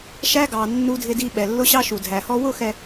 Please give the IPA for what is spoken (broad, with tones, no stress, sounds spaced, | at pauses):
ʃ æ˦ ɡ ɑ˨ nː u˨ dʱ ɪ˨ d i˨ ɓ ɛ˨ lː ʊ˦ ɕ ɑ˦ ʃ u˨ dʱ æ˨ h ɔ˦ w ʊ˦˨ x ɛ˨